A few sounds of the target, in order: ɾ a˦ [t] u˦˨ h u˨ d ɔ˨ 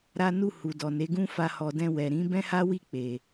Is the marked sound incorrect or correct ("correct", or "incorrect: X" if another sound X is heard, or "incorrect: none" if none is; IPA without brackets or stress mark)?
incorrect: n